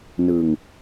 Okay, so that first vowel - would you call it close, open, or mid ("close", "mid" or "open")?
close